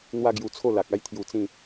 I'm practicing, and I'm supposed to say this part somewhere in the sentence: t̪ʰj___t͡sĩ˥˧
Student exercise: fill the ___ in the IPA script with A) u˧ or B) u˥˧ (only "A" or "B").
A